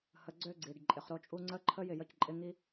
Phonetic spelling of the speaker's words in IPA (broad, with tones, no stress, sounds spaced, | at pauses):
h ə˨ ɡ͡ǀ ø˦ ɡ͡ǀ i˩ ɖ ǃʼ ɪ˩ χ ɾ o˦ t͡ʃʼ u˦ ŋ͡ǀ ə˦ ǃʰ ə˦ j ɪ˩ j ə˦ c ǃʼ ɪ˦ ŋ i˥